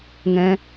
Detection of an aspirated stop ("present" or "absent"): absent